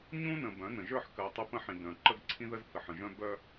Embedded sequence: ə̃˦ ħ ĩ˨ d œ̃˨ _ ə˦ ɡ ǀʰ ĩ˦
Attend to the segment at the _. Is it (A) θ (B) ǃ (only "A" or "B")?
B